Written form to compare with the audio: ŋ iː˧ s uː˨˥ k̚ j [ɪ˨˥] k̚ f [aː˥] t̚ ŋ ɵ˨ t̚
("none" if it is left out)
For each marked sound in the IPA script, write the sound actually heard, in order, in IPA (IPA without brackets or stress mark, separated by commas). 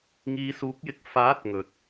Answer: ɪ˨˥, aː˨˥